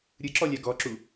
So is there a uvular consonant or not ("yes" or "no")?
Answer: no